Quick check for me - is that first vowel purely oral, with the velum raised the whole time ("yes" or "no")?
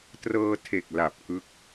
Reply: yes